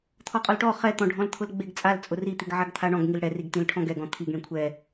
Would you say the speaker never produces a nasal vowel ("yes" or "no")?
no